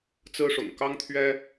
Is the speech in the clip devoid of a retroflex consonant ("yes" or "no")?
no